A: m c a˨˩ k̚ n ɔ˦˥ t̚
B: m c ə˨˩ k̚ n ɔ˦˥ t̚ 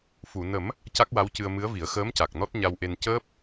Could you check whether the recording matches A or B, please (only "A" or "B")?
A